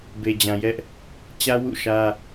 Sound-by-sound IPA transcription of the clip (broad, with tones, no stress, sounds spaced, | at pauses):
b e˨ d͡ʑ ã˨ j ɛ˦ ʔ | t͡ɕ ä˦ w ṵ˦˨ ʃ ä˦